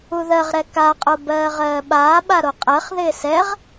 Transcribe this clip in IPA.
u ð ɜ ʁ ɾ ɛ k a qʼ o b ɜː ʁ ɜː ɓ aː ɓ a ɾ o qʼ ɜ χ ð ɪː s ɛ ʁ

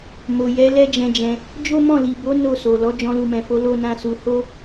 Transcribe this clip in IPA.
m o˨ j ɛ˨˦ l ɛ˦ d͡ʒ ɛ̃˧ d͡ʒ ɛ̃˧ | d͡ʒ o˦ m ɔ̃˦˨ l i˨ b o˨˦ n o˦˨ s o˨ l ɔ˨˦ d͡ʒ ɔ̃˧ l u˨ m ɛ̃˨ f o˨˦ l o˦ n ã˦ s u˧ h o˦

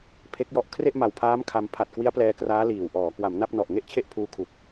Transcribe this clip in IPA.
pʰ e˦˥ k̚ j ɔ˦˥ ʔ kʰ r e˥˩ ʔ m a˨˩ w pʰ aː˦˥ m kʰ a˧ m pʰ a˨˩ t̚ k w i˦˥ a̯ p l ɛː˧ k r aː˦˥ l iː˨˩ w ʔ ɔː˩˦ k w a˩˦ m n a˥˩ p̚ n ɔ˨˩ ʔ ŋ e˥˩ ʔ t͡ɕʰ e˥˩ ʔ pʰ uː˧ kʰ u˨˩ k̚

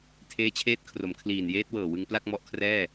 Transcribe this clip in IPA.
tʰ eː˧ t͡ɕʰ eː˦˥ t̚ kʰ r o˩˦ m kʰ l iː˨˩ n j eː˦˥ t̚ w ɤː˨˩ w ɯ˧ ŋ p l a˥˩ k̚ m ɔ˦˥ ʔ kʰ r ɛː˥˩

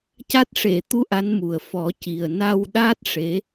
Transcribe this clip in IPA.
c a˦˥ t̚ ʂ e˨˩˨ t̪ u˧˥ ʔ a˧˥ n m u˨˩ ə̯ f ɔ˨˩˦ c i˨˩ ə̯ n a˧ w ɗ a˦˥ t̚ ʂ e˧˥

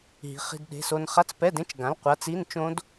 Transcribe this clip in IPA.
ɦ i̤˨˥ χ i̤˧˥˧ d ɗ e̤˧˥˧ s o˦˥ n χ a˧˥˧ t͡s p ɛ˧˥˧ d ẽ˦˥ t͡ʃ ɡ ã˨˥ l qʷ a˨˥ t͡s i˧˥˧ n t͡ʃ õ˦˥ d

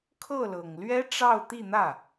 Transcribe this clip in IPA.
kʰ ɤ˥˩ l ɤ˨˩ ŋ l ɥ ɛ˥ ʈ͡ʂ ɑ˥˧ ʊ̯ t̪ i˥˧ n̪ ä˥˩

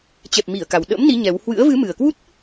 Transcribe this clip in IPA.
t͡ɕ ɛ˨˩ p̚ m i˧˩ ə̯ k a˨˩ w ɗ ə̰˧˥ m n i˨˦ ɲ ɛ˨˦ w h w ɨ̰˧˥ ə̯ v ɨ˨˦ m ɨ˨˩ ə̯ k w u˦˥ t̚

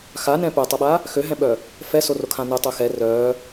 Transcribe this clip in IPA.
x a n ɛ̃ p œ tˤ ʊ ɓ a | x ø ɦ ɛ̃ ɓ œ | f ɛ s o r o kʰ ã n ʊ tˤ ø x ɛ r œ

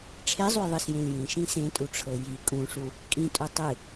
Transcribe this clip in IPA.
ʈ͡ʂʰ e zˤ u j ðˤ ɨ s j ẽ l j ĩ ʃ ĩ s ẽ tʼ u ʈ͡ʂʰ ɤ j i kʼ ũ ʂ u | kʼ ĩ tʼ u tˤ ɨ

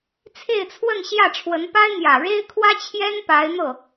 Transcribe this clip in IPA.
t͡sʰ e˥˧ ɪ̯ t͡sʰ w ə˥˧ n ɕ j ä˥˩ ʈ͡ʂʰ w ə˧˥ n p a˥ ɪ̯ n̪ j ä˨˩ ɻ e˥ ɪ̯ kʰ w ä˥ t͡ɕʰ j ɛ˥ n p a˧˥ ɪ̯ n̪ ɤ˥˩

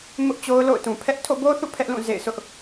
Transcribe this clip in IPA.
m ʊ˦ ʔ t͡ɕ o˦ ʊ̯ l o̰˦˨ ʊ̯ t ũ˨ pʰ ɛ˦ ʔ tʰ o̰˦˨ b o˦ θ ṵ˦˨ pʰ ɛ˦ ʔ l ũ˦˨ z ḛ˦˨ ɪ̯ sʰ ʊ˦ ʔ

